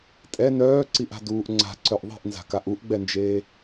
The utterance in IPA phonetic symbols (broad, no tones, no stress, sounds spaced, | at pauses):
tʼ ɛ n œː ǀ i ʔ a̤ d uː ʔ ŋ͡ǀ a̤ ǀ œ ʔ ðˤ i̤ ʔ n z a̤ k a ʔ u ʔ ɡ͡b ɛ n d͡ʒ eː